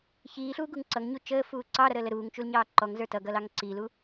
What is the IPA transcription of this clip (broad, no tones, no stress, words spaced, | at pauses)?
çiːɬuːɡuŋ ǀʌŋɲu t͡ʃəːfuː ǀɑɾʌɾəːlə ɾuːŋt͡ʃulɲɑː ǃɔŋzə˞ tʌɡʌlɑŋ ǀilu